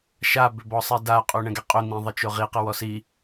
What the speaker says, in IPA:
ʃ a b ʏ b ɔ sˤ e d a qʼ o ɳ ɛ̃ ɡ ɛ qʼ ɵ n̪ ĩ ðˤ ɘ t͡ʃ o ʁ i q ɘ w ɔ s i

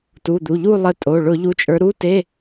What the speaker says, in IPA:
t u˩˧˩ d̪ u˩˧˩ ʎ u˦˨ lˠ ə˨˦ tʼ o˩˧˩ ɭ ʊ˧˩˧ ʎ u˨˦ t͡ʃʼ ə˞˨˦ ɾ u˧˥˧ t e˧˥˧

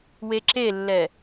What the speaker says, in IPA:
w e ǁ e lː ɛ

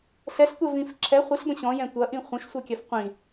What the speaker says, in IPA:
ɬ ɛ ɬ tʷ ɛ v ĩ f ǁʰ ɛ χʷ i ɬ b ə̃ ɕ ɔ̃ j ɛ̃ tʷ ɐ ʔ ĩ χʷ ə̃ ʃ sʷ ɛ kʲ ɐ f qʷ ĩ

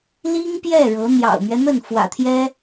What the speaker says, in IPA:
l i˥ ŋ p j ɛ˥˩ ɻ ɤ˧˥ n̪ j ɑ̰˨˩ ʊ̯ m ɥ ɛ˦ n̪ ə˥˩ n f w ä̰˨˩ t̪ʰ j ɛ˥

